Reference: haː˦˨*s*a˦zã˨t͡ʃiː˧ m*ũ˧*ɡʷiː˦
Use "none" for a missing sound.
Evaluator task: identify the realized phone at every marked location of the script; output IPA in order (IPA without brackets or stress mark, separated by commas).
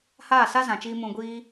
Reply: s, ũ˧